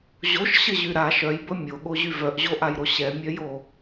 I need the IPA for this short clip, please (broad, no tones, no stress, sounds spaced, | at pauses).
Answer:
ʑ o ʃ ɕ ə ʑ y ɾ a ʃ œ j b ə mʲ o ɠ o ʑ y v œ ʔ ʑ o ʔ a j ɾ o ɕ ɛ mʲ œ j o